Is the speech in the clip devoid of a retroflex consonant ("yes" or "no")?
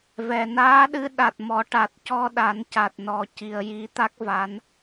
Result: no